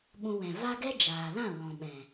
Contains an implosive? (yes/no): yes